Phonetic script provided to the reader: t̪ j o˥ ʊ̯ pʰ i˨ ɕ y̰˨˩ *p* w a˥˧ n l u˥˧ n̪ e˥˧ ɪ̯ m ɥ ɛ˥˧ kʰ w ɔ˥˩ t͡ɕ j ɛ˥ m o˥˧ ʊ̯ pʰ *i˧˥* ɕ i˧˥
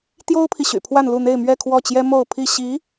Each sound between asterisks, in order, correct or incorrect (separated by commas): incorrect, incorrect